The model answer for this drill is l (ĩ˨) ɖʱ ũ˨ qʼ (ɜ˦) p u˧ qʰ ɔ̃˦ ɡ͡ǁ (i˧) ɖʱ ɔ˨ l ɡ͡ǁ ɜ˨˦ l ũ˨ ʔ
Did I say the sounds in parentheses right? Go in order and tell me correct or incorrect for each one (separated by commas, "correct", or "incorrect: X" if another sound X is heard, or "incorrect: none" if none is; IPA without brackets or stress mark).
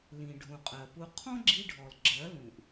correct, incorrect: ɜ˨, correct